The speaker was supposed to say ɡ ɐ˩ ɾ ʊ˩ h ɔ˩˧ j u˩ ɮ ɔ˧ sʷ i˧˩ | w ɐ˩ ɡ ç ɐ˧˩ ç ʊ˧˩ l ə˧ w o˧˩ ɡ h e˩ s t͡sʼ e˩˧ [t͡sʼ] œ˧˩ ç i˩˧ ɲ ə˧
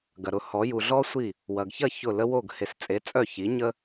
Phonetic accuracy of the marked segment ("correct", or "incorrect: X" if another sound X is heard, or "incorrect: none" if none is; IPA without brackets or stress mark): correct